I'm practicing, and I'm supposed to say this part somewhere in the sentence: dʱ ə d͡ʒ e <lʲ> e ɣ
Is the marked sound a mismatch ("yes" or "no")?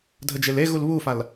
yes